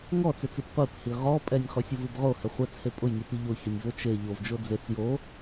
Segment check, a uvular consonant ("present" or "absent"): present